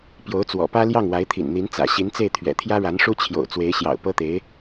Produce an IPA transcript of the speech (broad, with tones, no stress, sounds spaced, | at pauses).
p j o˧˥ ʊ̯ t͡s w ɔ̰˨˩ p ä˥ l j ɑ˥˩ ŋ w a˧˥ ɪ̯ t̪ʰ ḭ˨˩ n n̪ i˧˥ n t͡s ä̰˨˩ ɕ i˧˥ n t͡s e˥˩ ɪ̯ t̪ʰ ɥ ɛ̰˨˩ t̪ʰ j ä˥ ɻ a˧˥ n ʂ u˥ t͡ɕʰ j o̰˨˩ ʊ̯ t͡s w e˧˥ ɪ̯ ɕ j ɑ̰˨˩ ʊ̯ p ɤ˥ t̪ e˧˥ ɪ̯